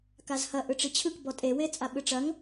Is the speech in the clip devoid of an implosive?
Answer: no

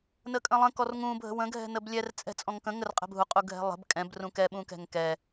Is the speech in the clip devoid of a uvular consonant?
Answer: no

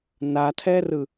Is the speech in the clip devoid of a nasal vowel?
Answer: yes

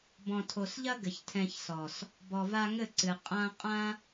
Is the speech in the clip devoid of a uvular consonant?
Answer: no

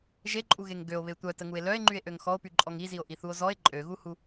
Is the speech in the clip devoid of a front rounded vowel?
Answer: no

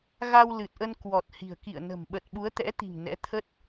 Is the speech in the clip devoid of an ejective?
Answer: yes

